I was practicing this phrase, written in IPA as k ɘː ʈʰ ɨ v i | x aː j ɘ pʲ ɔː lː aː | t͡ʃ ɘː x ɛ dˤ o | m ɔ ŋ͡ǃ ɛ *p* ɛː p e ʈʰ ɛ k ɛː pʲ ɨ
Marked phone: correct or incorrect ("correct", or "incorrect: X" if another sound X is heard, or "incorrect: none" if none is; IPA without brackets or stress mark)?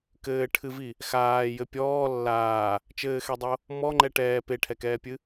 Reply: incorrect: ʈ